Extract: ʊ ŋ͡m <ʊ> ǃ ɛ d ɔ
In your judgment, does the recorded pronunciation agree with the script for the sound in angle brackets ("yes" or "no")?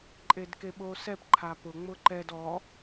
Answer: yes